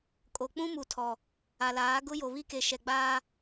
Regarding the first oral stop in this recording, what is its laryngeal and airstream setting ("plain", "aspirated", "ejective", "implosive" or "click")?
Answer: ejective